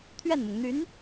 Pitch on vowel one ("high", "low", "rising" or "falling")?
falling